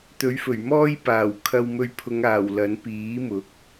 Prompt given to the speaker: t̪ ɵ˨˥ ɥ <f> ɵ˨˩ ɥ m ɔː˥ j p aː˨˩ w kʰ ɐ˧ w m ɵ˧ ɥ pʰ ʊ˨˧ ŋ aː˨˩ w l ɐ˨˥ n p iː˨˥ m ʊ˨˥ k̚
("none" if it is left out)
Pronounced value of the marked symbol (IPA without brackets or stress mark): f